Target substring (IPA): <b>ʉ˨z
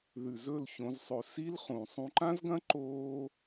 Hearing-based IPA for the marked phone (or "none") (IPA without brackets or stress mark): ð